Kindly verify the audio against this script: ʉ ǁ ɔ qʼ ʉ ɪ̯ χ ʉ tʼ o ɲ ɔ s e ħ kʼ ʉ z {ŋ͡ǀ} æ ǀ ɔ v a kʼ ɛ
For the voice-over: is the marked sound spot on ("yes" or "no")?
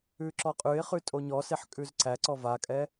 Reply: no